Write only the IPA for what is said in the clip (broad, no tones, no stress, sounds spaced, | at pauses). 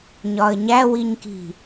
ɲ ɒ ə̯ ɲ æ w i ɲ k i̤